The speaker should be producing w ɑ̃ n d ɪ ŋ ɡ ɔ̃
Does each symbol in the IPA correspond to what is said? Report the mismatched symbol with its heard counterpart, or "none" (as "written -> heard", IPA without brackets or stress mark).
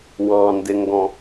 none